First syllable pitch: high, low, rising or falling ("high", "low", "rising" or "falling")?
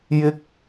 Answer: high